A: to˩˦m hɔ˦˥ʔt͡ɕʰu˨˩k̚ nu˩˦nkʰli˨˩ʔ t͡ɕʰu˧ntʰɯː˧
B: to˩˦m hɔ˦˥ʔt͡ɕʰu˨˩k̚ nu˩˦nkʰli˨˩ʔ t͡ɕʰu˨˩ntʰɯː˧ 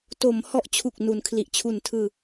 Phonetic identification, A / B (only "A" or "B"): B